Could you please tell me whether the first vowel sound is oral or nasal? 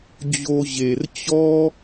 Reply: oral